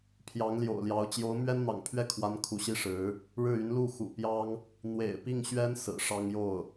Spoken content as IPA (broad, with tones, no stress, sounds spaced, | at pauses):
pʰ j ɑ˧˥ ŋ l j o̰˨˩ ʊ̯ l j ɑ˧˥ ʊ̯ t͡ɕ j o˧˥ ʊ̯ m ɥ ɛ˥ n n̪ ɑ̰˨˩ ŋ pʰ ɥ ɛ˥˩ kʰ w a˧˥ n kʰ u˧˥ ɕ i˥ ʂ ɻ̩˧˥ | ɻ ɻ̩˥˩ y˧˥ n l u˥˩ x ṵ˨˩ p j ɑ˥ ŋ | n̪ w ḛ˨˩ ɪ̯ p i˥˩ ŋ ɕ ɥ ɛ˥ n s ɹ̩˨˩ ʂ ɑ˥ ŋ j o˥˩ ʊ̯